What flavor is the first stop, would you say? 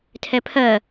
aspirated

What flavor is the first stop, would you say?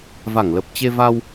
plain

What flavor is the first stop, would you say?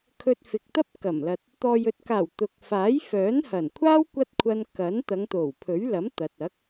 aspirated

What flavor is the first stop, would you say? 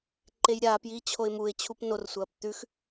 click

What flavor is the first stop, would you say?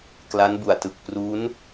plain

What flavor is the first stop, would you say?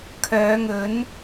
aspirated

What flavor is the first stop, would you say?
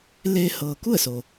plain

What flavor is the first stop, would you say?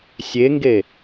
plain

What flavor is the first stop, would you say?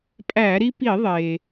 ejective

